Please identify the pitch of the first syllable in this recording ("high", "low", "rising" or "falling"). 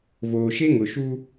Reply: low